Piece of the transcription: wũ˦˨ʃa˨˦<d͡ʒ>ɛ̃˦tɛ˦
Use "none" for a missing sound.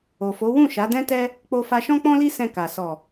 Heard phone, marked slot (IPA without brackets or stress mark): d